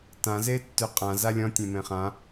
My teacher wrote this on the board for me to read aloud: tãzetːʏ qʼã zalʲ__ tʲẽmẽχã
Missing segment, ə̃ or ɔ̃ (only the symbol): ɔ̃